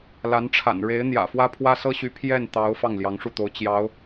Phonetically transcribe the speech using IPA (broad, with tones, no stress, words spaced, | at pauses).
la˧˥nʈ͡ʂʰa̰˨˩n ɻe˧˥ɪ̯n̪jä̰˨˩fwä˥ pʰwä˥sɤ˥ɕy˧˥ pʰjɛ˥˩nt̪ɑ˧˥ʊ̯ fɑ˥˩ŋljɑ˧˥ŋʂu˥˩t̪o˧˥ʊ̯ t͡ɕjɑ˧˥ʊ̯